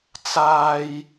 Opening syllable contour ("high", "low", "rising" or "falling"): high